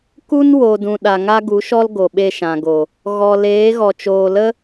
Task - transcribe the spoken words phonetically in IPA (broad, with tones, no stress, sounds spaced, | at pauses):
k u˦ n w o˨ d ũ˨ ɗ a˨ ŋ a˦ ɡ u˨˦ ʃ ɔ˦ l ɡ o˨ ɓ e˧ ʃ ã˨ ɡ o˨ | ɣ ɔ˨ l eː˨˦ ɣ ɔ˨ t͡ʃ oː˨ l ə˦